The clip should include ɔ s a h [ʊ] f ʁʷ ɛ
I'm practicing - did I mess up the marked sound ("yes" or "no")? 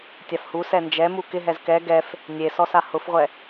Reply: no